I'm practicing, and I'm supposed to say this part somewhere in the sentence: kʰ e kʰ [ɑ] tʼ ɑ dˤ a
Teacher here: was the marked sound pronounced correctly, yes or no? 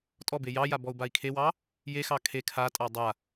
no